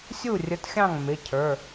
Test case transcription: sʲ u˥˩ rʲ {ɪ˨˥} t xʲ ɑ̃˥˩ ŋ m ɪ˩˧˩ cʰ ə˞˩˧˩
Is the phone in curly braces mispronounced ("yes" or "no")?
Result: yes